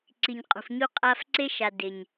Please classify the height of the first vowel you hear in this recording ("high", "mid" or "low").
high